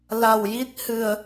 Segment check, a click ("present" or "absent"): absent